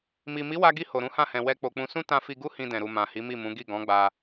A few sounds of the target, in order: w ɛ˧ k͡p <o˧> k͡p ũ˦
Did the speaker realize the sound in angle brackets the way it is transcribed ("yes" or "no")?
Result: yes